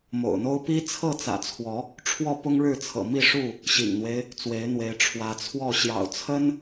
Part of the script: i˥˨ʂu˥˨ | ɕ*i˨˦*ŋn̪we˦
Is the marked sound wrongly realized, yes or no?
yes